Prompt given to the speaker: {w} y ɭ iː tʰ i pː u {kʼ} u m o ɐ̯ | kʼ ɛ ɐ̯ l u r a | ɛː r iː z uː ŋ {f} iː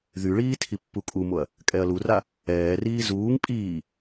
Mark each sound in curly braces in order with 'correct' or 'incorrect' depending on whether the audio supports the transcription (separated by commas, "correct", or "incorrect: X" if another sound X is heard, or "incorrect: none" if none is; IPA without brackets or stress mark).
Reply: incorrect: ð, correct, incorrect: pʼ